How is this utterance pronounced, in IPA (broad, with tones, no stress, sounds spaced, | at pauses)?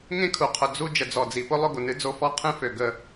ŋ ẽ˦ kʰ u˨ qʰ ʊ˨ d͡z u˦ d͡ʒ ə˨ d͡z ɔ˨ d͡z i˨ p ʊ˦ lˠ ʊ˦ ɡ ʊ˨ n ɨ˦ d͡z o˦ f ɔ˦ qʰ ẽ˦ f ø˨ ɡ ə˦